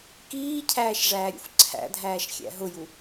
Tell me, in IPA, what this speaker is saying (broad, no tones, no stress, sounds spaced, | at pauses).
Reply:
k iː cʰ æː ʃ ʐ æː ɾʲ ṵ f ǀʰ æ̰ dʱ æː ʃ xʲ æ̰ ɦ ʊ j u